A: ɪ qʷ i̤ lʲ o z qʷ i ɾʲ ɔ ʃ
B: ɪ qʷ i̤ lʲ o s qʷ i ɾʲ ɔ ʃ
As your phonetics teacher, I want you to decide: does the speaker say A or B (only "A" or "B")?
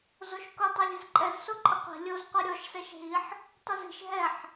A